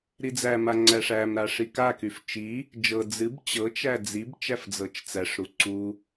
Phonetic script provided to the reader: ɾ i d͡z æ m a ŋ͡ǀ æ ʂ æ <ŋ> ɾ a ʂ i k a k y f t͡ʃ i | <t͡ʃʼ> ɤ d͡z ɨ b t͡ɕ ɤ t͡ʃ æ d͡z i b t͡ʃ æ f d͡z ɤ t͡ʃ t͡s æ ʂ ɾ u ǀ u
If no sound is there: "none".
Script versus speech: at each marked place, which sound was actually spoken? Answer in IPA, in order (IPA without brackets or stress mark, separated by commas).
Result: m, d͡ʒ